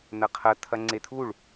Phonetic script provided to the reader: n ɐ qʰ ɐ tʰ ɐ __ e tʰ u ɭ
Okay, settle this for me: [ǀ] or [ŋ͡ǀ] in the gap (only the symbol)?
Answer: ŋ͡ǀ